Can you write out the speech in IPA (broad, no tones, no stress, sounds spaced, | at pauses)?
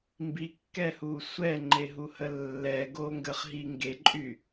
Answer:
m b i kː ɛ h u sʷ ɛ ŋ͡ǃ e ɦ u h ə lː ɛ ɡ o ŋ ɡ ə χ ɦ i ŋ ɡ e ǃʼ y